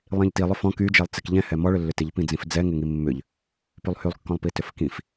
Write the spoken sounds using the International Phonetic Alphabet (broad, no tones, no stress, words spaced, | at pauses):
lˠĩʎtilˠʏ fɔ̃ kyd͡ʒɛlˠ t͡sɪkʎɛ̃hɛ mɔɭʏlːʏ tɪʎ pĩd͡zĩfd͡zɛ ŋɪŋimːʏʎ | pylˠhylˠkːɔ̃lˠpi tʏfkĩf